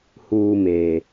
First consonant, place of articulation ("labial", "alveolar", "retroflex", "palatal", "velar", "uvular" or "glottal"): glottal